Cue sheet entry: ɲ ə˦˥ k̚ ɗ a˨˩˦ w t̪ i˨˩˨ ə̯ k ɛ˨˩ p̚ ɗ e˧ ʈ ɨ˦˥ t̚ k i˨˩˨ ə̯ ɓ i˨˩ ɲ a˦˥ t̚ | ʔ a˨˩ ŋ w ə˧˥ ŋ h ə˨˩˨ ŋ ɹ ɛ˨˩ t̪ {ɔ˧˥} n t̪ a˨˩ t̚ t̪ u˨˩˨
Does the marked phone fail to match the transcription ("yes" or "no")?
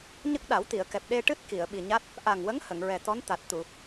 no